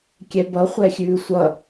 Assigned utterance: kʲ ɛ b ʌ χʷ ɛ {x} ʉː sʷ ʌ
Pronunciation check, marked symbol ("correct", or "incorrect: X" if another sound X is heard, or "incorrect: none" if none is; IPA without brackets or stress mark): incorrect: xʲ